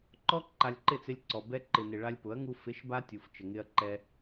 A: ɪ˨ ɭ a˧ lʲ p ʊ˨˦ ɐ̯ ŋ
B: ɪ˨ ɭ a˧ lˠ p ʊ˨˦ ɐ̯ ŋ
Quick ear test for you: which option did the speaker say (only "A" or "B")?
A